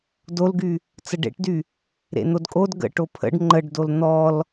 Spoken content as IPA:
d o l ɡ y | t͡s ə ɖ ḛ ʈ d y | ɾ ḛ n̪ o d kʼ o d ɡ ə̰ ʈ o pʰ ə̰ ɖ ŋ͡ǃ ə ɖ d o l n̪ ɔ l

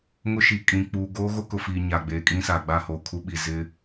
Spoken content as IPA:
ŋ ʊ˦ ʃ i˨ kʼ ĩ˨ k͡p uː˨ ɡ oː˦ ɣ o˦ k ʊ˨ f iː˨ ɲ a˨ ɡ͡b e˨ kʼ ĩ˦ s a˨ ɡ͡b a˦˨ h oː˨ kʰ u˦ ɓ i˨ z ɪ˦

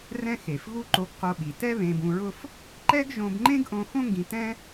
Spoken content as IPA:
r ɛ̃˥ x e˩ f ɣ u˥ ǃ o˧ ɡ q o˧ ɓ i˩ t ɛ˥ β ẽ˧ b ũ˧ ɹ ʊ˥ f | ǃ ɛ˥ ɡ ʒ õ˧ b ŋ͡ǃ ẽ˥ ɡ ʔ õ˧ x õ˥ ŋ ɡ ĩ˧ t ɛ̃˥

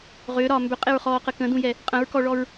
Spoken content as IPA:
ʁ ʏː ɾ ɒː m b ʏ qʼ e ɹ χ ɔː q ə k ə̃ d ũ j ɛ | qʼ ə̃ ɹ k ɔ ɭ ɔ ɹ

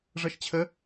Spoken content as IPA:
ʐ ʌ ʃ t͡ɕʰ ə

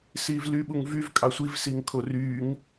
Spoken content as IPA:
s iː v l y ɓ u ŋ v y v kʼ ɑ sʷ i v s i ŋ kʰ o r yː ŋ

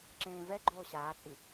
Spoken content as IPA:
ǁ ẽː v ɛ ɡ͡ǃ oː ɕ aː t͡sʼ i

